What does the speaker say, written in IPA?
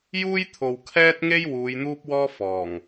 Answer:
juː˥jt̪ʰo˨w kʰɛː˥t̚ŋe˥j wuː˨˧j n̪uː˥p̚wɔː˥fɔː˨˩ŋ

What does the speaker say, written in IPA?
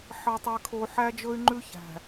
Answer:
ħɑ˨tˤe˨kʰo˨ ħæ˦d͡ʒɵ˦y̯ ŋ͡ǃʉ˦çæ̤˨

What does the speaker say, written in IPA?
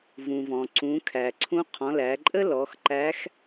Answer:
vũ˩vɔ̃˩ ǀũ˩˧kʰæ˩ǀʰũ˧˥ qʰɔ̃˩˧læ˩˧ǃʼə˥ lɔ˩˧xǃæ˧˥x

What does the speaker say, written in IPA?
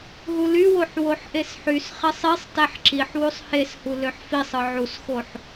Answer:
ɦulywoħ woħʔesħysχesˤ isˤtæħ ǁiħwusˤ heshu løħfisˤɯ ʕusxoħ

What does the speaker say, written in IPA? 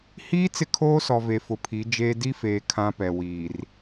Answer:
hiː˦ t͡sɪ˦kʰoː˦sɔ˨ ve˨fʊ˨pʰi˨˦ d͡ʒeː˦ di˦feː˨ kʰã˦pɛ˨wiː˨r

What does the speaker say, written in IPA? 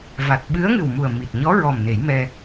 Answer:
va˨˩t̚ɓɨ˧˥ə̯ŋɨ˨˩w mu˨˩ə̯ mi˨˩t̚ɲɔ˧˥ɹɔ˨˩m ne˨˩˦jmɛ˧

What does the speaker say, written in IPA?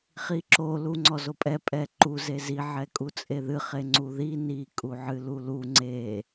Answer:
χiǁo luŋ͡ǀɔzopʼɛ pʼɛǃu zezi ʕɛkʼut͡sʼeðɨ χeŋ͡ǀuði ni kʼuʕɨlulu ŋ͡ǀe

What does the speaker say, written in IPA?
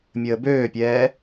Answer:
mʲəːbøːpʲɛː

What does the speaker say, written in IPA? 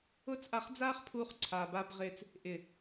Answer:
ʊː˦t͡sʔa˧χd͡zaː˦χpʰuː˧χ ǀʰaː˨baː˧bʁɪː˧t͡s | ʔɪ˨

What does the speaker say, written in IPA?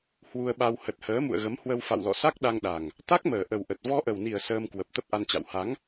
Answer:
hwu˧ə̯ɓa˧w hə˨˩t̚həː˨˦mṵ˧˨ə̯ ɣə˨˦mhwə˧wfa̰˧˨wlɔ̰˧˨ sa˦˥k̚ ɗa˧ŋɗa˨˩ŋ | t̪a˦˥k̚məː˨˩ ʔə˨˩wʔə˨˩t̚ vɔ˧ʔə˨˩wni˨˩ə̯ səː˧mkwə˨˩p̚ t̪ə˦˥p̚ʔa˧nt͡ɕa̰˧˨w ha˨˦ŋ

